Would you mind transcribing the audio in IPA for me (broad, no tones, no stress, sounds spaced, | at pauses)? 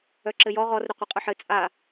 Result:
œ ǁ ɘ j ɔ ʁ ɔ r ɾ ɵ qʷ ɘ qʼ œ ħ ɘ t͡sʼ a